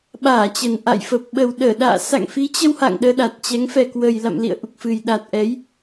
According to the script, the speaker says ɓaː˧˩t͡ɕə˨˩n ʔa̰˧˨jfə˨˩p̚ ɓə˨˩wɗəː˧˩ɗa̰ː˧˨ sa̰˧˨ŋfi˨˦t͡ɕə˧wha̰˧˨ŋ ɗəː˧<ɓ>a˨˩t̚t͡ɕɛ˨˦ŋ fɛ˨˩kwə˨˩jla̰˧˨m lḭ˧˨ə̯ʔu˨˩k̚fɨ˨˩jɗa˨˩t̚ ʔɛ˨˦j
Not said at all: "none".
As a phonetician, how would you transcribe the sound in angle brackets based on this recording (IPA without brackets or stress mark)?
ɗ